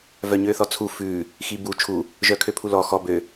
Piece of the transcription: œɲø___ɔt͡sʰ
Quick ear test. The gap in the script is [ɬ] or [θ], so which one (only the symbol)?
θ